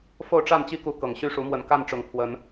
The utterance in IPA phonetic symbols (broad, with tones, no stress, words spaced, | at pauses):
fo˥˨ʊ̯ʈ͡ʂa˥˨nt͡ɕi˦ku˨˦ kɤ˨˩ŋɕy˥˨ ʂu˨˦mwə˨˦n ka˥˨n ʈ͡ʂʊ˨˩ŋpʰwə˨˦n